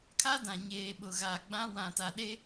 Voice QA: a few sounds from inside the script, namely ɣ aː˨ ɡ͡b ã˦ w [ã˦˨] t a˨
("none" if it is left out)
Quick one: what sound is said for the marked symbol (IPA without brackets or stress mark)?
ã˨